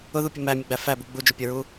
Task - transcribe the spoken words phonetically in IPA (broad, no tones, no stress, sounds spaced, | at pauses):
ʊ ð u pʲ ʌ m æ mʲ ʊ ɡ͡b æ f æ b u ɡ͡b u d͡ʒ ʊ pʲ ʌ ɹ u